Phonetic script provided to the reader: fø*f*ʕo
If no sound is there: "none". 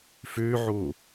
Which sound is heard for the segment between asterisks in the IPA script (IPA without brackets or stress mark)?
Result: none